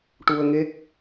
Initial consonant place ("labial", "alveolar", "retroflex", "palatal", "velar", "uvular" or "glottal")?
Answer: retroflex